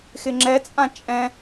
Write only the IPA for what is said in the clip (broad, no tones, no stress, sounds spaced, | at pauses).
x ɪ ŋ͡ǁ ɛ t͡sʼ ã t͡ʃʼ ɛ̃